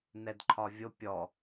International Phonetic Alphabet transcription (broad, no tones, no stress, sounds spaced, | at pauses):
n ɛ d ǃʰ ɒ vʲ o pʲ ɔ